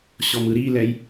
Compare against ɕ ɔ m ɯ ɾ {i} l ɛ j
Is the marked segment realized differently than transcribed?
no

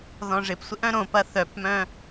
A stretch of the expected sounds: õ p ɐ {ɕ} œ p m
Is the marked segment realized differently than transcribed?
yes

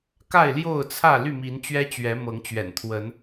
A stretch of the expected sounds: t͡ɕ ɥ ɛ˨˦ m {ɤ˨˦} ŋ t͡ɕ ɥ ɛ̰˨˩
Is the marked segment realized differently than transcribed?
no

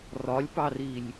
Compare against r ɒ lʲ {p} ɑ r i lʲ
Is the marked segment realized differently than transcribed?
no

